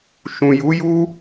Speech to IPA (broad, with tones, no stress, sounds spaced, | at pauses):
ʃ ũ˨ j u˨˦ j u˦